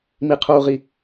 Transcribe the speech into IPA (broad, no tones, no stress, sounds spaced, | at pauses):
m i qʰ uː ʁ i